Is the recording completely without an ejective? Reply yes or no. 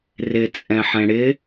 no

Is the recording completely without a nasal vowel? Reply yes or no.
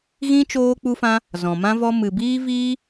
no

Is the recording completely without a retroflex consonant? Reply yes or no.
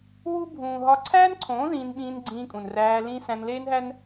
yes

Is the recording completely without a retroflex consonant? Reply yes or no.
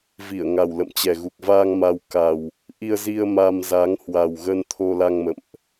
yes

